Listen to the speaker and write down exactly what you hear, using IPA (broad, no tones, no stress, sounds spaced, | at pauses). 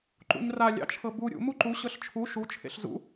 ǃ ṵ ɲ r a lʲ ɑ̰ t͡ʃʰ ɤ b u ɾʲ ṵ m u ǃ u ɕ ɤ ɬ t͡ʃʰ u ʃ u t͡ʃʰ ḛ ɬ z ṵ